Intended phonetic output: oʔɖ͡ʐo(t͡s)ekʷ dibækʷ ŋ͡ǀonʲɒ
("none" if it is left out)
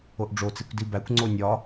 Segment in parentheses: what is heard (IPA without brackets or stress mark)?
t͡s